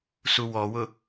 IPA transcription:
s u w ɔ w ʊ

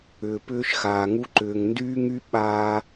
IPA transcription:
ʏː˨ p ʏː˦ ʃ x aː˨ ŋ u˦ ǃ ʏː˨ ŋ n d yː˦ ŋ y˦ ɓ aː˦

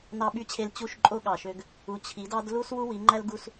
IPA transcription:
n ɑ˨ ɓ y˨ t͡ɕʰ e˨ l t͡ɕ u˦˨ ʃ ǃʼ o˦ ɠ ɑ˨ ʃ ø˦ ɡ | u˨ t͡ɕʰ i˨˦ d ɑ˦ d l u˦ s w u˦ w i˨˦ ŋ͡ǃ æ˦ l ɡ u˦ s

